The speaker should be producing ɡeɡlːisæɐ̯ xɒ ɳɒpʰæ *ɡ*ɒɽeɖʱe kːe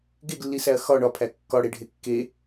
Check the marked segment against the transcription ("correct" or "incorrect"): incorrect